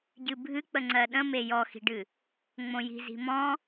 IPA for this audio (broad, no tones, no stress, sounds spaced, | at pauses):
ɟ ɨ bʱ ɨ k͡p ə ŋ͡ǀ ɜ ɗ ə̃ m e j ɔ x i̤ ɖ ɨ | ŋ͡m õ j i̤ z i̤ m ɔ̃